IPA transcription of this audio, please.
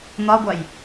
n̪ɒɡʷaj

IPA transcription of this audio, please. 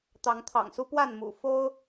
t̪ɑ˨˦ŋt̪ʰɑ̰˨˩ŋsu˦ pwa˥˨nmṵ˨˩ fo˦ʊ̯

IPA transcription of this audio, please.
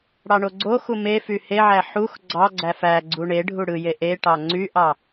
ɽɑɳoɡ͡ǀoxu me fyheʕæ ħux ɡ͡ǀɑɡ͡ǀæf æ ɡ͡ǀuɳeɖʱu ɽɯje ʔeʈɑ ŋ͡ǀyʔɑ

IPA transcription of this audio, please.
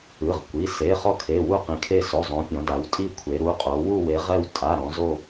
ɯ˩˧˩ʁkʷi˩˧˩ se˩˧˩ χɔ˦˨kʰe˩˧˩ wu˦˨qĩ˩˧kʰe˦˨ so˩˧˩zˤõ˩˧ pʲɔ̃˩˧da˩˧wtʼi˦˨kʷʰe˩˧ ɾu˩˧˩qʼo˩˧ wu˦˨we˩˧ʁɛ˦˨w tʼa˩˧˩ɾɔ̃˩˧ zo˦˨

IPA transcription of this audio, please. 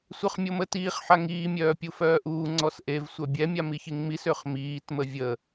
sʷœχmʲomətiːχ ħaŋiː mʲœːpʲufœːʔuː ŋ͡ǀɔsʔev sʷœbʲɛ mʲamiçiŋmis øχmiːt məvʲə

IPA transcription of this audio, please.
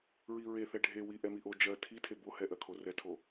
ɹiɹeθɛ ɖʱewi ʔɛmiʔo d͡ʒɜ tʰitʰe bohɛʔɜkʰo rɛtʰo

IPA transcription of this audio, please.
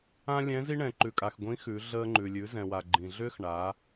ã˥lʲɛ̃˧˥zi˥ ɳɛ̃˩ǃʉ˩kʼa˩x ɡʷĩ˧˥ xʉ˩˧ ɮəː˧ŋ͡ǃʉ˩ lʲʉ˩˧zɛ̃˩wa˩ ɡ͡ǃĩ˩ɮʏː˥x ɳa˩˧

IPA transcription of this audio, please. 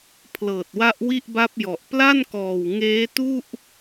pʰlɤː˨˩t̚wa˦˥ʔ wi˥˩ʔba˦˥p̚jɔ˨˩ʔ pla˥˩nkɔː˨˩w ŋeː˦˥tu˥˩ʔ

